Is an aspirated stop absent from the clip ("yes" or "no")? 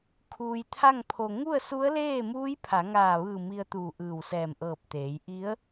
no